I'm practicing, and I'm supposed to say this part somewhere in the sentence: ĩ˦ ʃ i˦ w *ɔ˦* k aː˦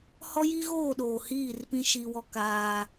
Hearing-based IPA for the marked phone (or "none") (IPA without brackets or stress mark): ɔ˦